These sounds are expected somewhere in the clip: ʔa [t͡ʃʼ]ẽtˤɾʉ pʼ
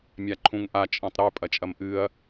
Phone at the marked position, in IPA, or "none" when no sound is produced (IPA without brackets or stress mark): t͡ʃʼ